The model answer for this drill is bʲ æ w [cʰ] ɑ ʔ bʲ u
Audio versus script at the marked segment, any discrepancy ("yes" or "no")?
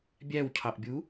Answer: no